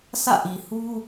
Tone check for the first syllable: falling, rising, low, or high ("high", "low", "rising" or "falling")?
falling